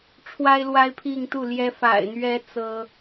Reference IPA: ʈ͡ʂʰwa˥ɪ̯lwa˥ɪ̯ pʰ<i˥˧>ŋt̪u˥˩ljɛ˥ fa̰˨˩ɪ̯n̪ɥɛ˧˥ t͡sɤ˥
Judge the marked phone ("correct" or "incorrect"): correct